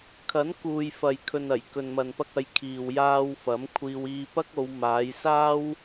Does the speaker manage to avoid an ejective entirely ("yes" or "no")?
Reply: yes